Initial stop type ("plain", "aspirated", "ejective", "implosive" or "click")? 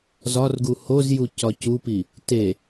plain